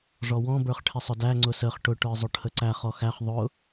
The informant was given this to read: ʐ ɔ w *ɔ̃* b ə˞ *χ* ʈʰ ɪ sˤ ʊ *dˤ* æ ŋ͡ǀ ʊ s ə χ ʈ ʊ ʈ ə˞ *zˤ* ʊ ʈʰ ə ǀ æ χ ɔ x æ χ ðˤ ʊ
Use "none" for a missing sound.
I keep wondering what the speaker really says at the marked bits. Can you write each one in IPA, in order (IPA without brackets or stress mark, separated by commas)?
ɔ̃, χ, d, zˤ